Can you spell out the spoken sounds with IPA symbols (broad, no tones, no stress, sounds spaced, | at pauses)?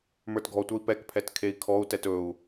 m ə˞ t ɡʱ ɔ tʷ ə˞ i̯ p ɛ k pʰ ɛ t kʰ e i̯ kʰ ɔ u̯ t ɛ t ɵ u̯